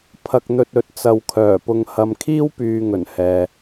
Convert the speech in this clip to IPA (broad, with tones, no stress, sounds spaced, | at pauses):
pʰ ɐ˧ k̚ n̪ ɵ˧ t̚ ɵ˨˥ t̚ t͡s ɐ˨ w kʰ œː˨˩ p ʊ˨ ŋ h ɐ˨ m kʰ iː˥ w p yː˨ ŋ ɵ˨˩ n h ɛː˨